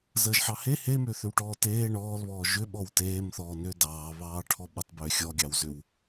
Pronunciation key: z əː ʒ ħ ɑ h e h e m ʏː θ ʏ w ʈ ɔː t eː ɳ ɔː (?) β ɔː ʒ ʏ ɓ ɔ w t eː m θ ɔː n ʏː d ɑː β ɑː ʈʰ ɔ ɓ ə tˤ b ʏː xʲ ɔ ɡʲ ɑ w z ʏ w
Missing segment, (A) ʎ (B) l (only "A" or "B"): B